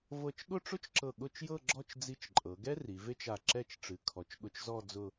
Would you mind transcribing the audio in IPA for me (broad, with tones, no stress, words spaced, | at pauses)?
vɤ˧˩t͡ʃɠʊ˥˧ʈ͡ʂʊ˥t͡ʃǁɤ˧˩ ɠʊ˥˧t͡ʃjɤ˥˧ɡ͡ǁɔ˥˧t͡ʃ d͡zi˧t͡ʃǃʼɤ˩˧ɡɛ˥ ri˩˧ve˥t͡ʃa˧˩ ǁɛ˥˧t͡ʃ ʈ͡ʂɨ˩˧kʰɔ˩˧t͡ʃɠʊ˧t͡ʃzɔ˥˧ d͡zʊ˥˧